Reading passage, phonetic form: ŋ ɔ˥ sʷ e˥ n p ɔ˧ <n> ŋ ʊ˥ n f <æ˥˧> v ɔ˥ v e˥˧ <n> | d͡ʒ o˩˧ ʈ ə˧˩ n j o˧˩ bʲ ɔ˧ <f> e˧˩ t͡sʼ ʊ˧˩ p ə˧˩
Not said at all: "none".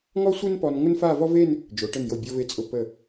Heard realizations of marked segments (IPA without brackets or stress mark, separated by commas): n, a˥˧, n, v